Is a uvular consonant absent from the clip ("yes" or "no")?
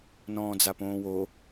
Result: yes